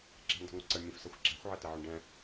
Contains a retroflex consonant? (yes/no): yes